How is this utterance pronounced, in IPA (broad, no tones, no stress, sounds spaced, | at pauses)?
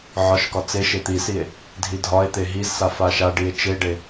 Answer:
ʕ ɒ ʃ k ɒ t͡s e ʃ e t̪ i s i e̯ | dʱ i dʱ ɒ e̯ t̪ e ɦ i z s a f a ʃ a ɖ i e̯ t͡ʃ e ɖ e